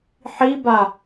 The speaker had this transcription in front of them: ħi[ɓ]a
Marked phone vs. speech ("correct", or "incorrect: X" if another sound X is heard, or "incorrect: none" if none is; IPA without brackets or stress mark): incorrect: b